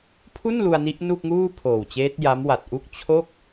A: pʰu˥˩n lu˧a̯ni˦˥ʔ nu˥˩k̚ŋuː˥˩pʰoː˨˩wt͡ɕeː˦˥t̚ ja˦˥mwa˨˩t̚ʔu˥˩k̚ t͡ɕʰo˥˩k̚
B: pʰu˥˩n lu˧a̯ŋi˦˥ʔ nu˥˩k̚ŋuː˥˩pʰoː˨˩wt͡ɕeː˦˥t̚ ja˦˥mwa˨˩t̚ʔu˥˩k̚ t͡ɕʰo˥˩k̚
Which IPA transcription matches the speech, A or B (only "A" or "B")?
A